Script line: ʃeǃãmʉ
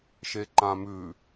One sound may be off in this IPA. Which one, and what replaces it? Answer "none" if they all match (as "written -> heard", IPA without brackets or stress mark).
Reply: none